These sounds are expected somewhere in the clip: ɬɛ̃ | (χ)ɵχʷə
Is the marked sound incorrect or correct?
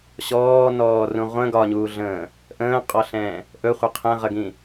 incorrect